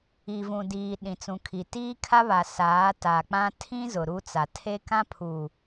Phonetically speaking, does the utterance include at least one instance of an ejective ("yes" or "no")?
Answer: no